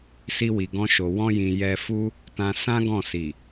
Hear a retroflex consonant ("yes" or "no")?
no